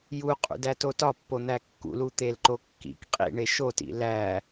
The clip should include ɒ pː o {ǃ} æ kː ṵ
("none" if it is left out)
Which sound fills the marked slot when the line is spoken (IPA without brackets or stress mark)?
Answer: n̪